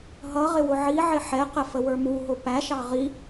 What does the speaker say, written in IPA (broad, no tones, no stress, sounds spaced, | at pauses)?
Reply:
ɦ ʌ ʁ ɪ w ʊ ʕ i ʕ ɪ ħ ɛ q ə f ə w ə˞ m u ɦ ʊ p æ ʃ ɑ ʁ i